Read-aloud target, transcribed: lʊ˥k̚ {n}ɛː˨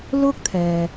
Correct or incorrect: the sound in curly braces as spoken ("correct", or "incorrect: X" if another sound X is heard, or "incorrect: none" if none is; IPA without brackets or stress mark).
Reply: incorrect: t̪ʰ